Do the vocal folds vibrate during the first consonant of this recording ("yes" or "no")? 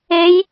yes